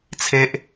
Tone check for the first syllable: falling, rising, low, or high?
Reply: high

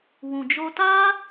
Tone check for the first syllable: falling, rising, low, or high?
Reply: low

